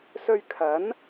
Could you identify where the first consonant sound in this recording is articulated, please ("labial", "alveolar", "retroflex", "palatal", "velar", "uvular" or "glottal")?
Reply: alveolar